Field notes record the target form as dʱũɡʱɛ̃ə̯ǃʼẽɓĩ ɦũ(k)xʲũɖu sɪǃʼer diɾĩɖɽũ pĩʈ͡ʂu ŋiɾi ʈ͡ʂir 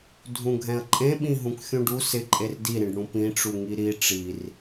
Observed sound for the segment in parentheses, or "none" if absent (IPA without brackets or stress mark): k